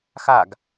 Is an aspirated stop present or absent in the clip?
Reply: absent